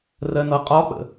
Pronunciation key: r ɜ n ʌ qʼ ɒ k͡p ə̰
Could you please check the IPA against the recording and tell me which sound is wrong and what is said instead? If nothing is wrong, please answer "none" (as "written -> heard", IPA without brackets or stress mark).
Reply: none